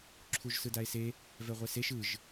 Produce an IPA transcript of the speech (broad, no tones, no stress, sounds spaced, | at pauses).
ǁʰ u ʒ s ɯ d a e̯ s e | v ɛ ʁʷ ɛ s e ʃ ɯ ʒ